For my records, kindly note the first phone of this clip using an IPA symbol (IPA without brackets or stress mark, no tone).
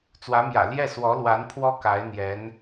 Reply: t͡s